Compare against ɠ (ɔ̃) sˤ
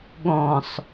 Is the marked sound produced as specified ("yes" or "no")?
yes